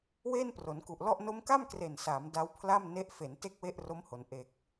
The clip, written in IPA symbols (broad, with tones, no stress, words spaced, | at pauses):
weː˥˩npro˩˦nku˨˩ʔlɔ˥˩ʔ no˦˥mka˥˩m kre˨˩nsaː˩˦m da˦˥wpʰla˥˩mne˦˥ʔ fe˩˦n te˥˩k̚we˥˩ʔro˦˥mho˩˦n ʔe˨˩k̚